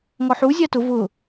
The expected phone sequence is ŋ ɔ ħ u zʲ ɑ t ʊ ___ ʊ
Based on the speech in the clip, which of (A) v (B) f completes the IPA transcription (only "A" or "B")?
A